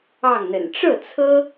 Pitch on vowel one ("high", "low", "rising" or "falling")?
falling